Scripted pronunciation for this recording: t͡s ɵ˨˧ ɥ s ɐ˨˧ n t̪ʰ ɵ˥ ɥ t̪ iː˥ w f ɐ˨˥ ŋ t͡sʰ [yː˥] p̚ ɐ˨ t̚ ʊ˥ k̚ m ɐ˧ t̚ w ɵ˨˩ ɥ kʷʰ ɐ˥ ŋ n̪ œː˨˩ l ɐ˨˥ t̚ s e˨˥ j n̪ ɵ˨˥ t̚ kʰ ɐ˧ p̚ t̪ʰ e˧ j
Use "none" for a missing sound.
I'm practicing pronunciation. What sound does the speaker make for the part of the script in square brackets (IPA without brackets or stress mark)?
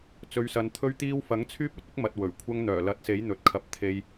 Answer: yː˥